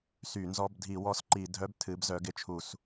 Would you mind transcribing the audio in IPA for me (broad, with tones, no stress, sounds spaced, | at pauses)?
s y˧˩˧ n z ɔ˧˥˧ b dʱ i˧˩˧ w ɔ˧˥˧ s ǃ i˧˩˧ dʱ œ˧˥˧ b tʰ ɨ˨˦ b z œ˨˦ ɡ ɪ˨˦ t͡ʃʰ u˧˩˧ s